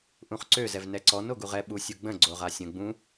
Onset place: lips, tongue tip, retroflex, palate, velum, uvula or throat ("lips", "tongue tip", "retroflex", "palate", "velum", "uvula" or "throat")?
throat